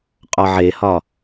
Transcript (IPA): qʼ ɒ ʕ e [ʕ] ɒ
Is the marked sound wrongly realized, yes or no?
yes